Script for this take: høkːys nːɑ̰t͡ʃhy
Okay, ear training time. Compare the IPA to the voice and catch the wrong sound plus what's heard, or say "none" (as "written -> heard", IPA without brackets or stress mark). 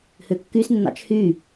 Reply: none